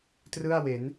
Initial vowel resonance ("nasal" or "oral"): oral